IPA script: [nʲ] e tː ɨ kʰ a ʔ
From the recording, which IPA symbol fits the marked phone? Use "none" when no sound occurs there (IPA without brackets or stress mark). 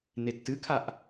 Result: n